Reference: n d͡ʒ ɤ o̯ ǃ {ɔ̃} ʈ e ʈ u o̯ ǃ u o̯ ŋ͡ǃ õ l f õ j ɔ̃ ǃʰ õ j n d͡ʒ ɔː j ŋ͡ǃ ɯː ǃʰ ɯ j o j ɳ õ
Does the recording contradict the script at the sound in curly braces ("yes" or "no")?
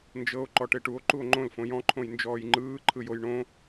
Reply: yes